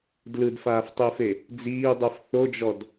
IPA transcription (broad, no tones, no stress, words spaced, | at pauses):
dlɯdfaːftˤiːfe | d͡ziːdˤɯf θod͡ʒɔd